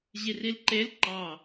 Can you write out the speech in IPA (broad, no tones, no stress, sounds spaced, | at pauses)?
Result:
ʑ i r i l ǃ e l ǃ ɑ